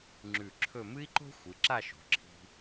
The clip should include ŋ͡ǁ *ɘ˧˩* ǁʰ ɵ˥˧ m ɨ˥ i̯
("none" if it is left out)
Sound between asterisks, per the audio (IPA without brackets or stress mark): ʉ˧˩